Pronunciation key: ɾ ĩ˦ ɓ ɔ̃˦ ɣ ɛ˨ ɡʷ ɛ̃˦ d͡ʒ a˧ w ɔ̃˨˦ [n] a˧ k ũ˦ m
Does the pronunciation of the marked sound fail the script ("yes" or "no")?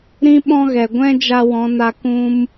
no